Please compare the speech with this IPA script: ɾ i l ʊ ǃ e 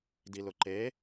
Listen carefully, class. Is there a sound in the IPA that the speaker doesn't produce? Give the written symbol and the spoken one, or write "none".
ɾ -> d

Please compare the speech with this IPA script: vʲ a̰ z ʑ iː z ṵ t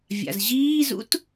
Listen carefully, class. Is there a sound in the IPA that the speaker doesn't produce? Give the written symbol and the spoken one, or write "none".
none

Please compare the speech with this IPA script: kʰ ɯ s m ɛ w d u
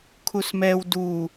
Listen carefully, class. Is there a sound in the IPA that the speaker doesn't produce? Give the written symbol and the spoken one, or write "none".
ɯ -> u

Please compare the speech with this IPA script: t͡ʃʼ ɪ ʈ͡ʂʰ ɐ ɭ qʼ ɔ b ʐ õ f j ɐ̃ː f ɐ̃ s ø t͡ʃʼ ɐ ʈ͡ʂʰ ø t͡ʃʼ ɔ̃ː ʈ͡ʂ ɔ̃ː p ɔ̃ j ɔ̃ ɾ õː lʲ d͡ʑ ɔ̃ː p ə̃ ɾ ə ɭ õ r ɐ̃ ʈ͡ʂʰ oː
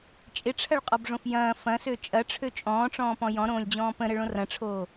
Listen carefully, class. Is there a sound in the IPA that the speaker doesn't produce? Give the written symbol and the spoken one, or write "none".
none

